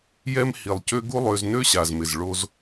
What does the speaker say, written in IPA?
jɛ˦m hi˨lˠcø˦ ɡu˦lˠø˧z nø˦ɕa˨zmɪ˨z ɭo˧z

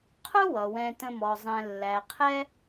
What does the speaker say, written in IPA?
qʰʊ˥wʌ˩ wɛ̃˨tə̃˨ mɔ˩zˤɛ̃˨ lːæ˩qʰɛ˦

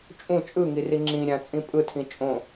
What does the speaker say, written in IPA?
t͡ʃʼũ t͡ʃʼɯŋiri ŋ͡ǁĩɾʲã t͡sʼĩpʼɯtʰĩ t͡ʃʼõ

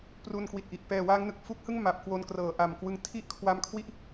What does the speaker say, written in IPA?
pru˧nkwi˨˩t̚ʔi˨˩ʔ pɛː˨˩waː˦˥ŋnɯ˨˩k̚ fu˦˥k̚hɯ˥˩ŋ ma˨˩p̚ kwo˧nkrɤː˩˦ʔa˨˩m kwɯ˧ŋ tʰi˥˩ʔkʰwa˦˥mkʰwi˥˩ʔ

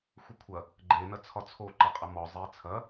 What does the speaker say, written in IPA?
xʷəkʷʰɐ | ɡ͡ǃe nɐt͡sʰɒt͡sʰo ǃɐqʼɐmɔ zˤit͡sʰɐ

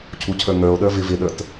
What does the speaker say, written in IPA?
cʰucʰə˞ŋə˞o̯ɗə˞ vɪvɪɗə˞t

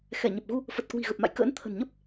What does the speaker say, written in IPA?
xɛ˧˩ɲə˨˩p̚ ɣu˧ | fə˨˩t̚ kwi̤˨˩ɣə˨˩p̚ma̰˧˨jkə̰ː˧˥n t̪ʰə̤˨˩nɲə˦˥p̚

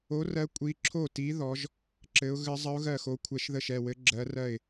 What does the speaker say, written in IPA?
o˧˥rɜ˧˥ kʷʼi˧˥ǁʰo˥˨ti˧˥ ðɔ˧˥ʒ | ǁɘ˧˥ʊ̯ ɣɘ˧˥zˤə˧˥ʊ̯ ɣɜ˥˨xo˧˥kʷʰɛ˧˥ʃðə˥˨ʃ ɛ˥˨wɘ˧˥ ɡ͡ǁɜ˧˥rɜ˥˨ɪ̯

